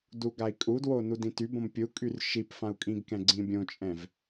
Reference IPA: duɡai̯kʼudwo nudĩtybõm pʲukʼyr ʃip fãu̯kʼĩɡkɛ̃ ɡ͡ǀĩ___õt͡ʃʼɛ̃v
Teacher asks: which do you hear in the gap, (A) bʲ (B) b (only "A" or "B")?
A